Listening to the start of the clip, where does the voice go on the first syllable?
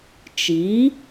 rising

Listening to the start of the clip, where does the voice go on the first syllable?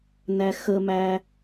high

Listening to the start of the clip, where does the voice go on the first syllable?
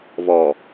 low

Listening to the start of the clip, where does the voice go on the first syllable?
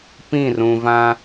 falling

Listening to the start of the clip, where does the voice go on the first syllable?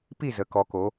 falling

